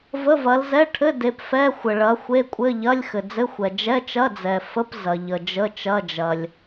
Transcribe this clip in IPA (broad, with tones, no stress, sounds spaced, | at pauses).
v ə˧˥˧ v ɐ˨˦ l z ɛ˧˥˧ ʈʰ ɘ˧˥˧ d e˨˦ p f ɛ˧˥˧ xʷ ə˩ ɭ ɐ˨˦ xʷ e˧˥˧ kʷʼ ɘ˧˥˧ ʎ ɐ˧˥˧ lʲ x ɘ˩ d͡z ɘ˧˥˧ xʷ ɛ˩ d͡ʒ ɛ˧˥˧ t͡ʃ ɐ˧˥˧ d͡z ɛ˩ f ə˧˥˧ p z ɐ˩ ʎ ə˩ d͡ʒ ə˧˥˧ t͡ʃ ɐ˧˥˧ d͡ʒ ɐ˩ lʲ